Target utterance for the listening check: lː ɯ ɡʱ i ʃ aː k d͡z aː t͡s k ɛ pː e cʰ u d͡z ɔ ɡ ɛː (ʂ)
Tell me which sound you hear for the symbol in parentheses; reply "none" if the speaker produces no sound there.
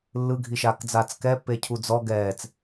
t͡s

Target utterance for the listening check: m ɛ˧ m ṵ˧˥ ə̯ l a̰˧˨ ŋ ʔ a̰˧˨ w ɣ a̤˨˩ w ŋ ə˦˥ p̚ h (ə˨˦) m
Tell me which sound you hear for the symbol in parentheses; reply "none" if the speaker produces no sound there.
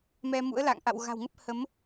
ə˨˦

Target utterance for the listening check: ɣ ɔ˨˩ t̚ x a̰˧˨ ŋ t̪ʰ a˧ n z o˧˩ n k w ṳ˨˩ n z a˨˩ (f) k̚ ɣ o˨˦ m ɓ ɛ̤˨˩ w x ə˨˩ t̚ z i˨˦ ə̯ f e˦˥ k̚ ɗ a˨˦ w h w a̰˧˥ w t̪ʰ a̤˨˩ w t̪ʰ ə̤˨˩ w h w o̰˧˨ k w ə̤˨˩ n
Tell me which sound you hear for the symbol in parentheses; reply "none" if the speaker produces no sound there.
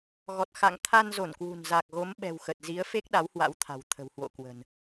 none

